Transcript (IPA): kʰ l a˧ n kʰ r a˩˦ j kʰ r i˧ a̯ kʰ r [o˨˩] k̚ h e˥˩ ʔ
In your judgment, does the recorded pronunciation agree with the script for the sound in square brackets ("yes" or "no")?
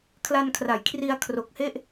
yes